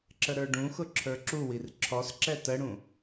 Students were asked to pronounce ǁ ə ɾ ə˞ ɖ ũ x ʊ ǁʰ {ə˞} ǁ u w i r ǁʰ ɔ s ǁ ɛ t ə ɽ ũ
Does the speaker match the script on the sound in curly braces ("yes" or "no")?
yes